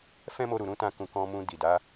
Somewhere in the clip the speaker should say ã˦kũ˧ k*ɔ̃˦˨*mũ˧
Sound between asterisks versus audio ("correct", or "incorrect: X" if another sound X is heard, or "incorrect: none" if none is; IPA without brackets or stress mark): incorrect: ɔ̃˧